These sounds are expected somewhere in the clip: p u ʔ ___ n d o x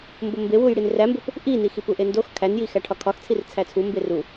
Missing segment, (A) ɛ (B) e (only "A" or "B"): B